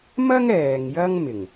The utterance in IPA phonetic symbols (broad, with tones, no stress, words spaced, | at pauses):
mɐ˥ŋɛː˨ŋ jɐ˥ŋmɪ˨˩ŋ